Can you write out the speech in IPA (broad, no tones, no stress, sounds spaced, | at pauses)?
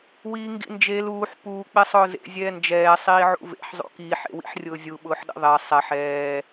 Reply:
w iː ŋ ɡ ḭ n d͡ʒ e l uː ħ p uː k͡p e sˤ ʊː z ḛ zʲ ɛː n d͡ʒ ɛː sˤ iː ʕ ṵ v ḛ ħ zˤ ṵ k iː ħ ḛ w ḭ ħ rʲ ʊː zʲ u ɓ ʊː ħ ɗ ḭ ðˤ e sˤ ɛ ħ ɛː